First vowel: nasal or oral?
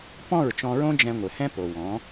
nasal